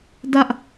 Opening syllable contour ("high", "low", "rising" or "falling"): high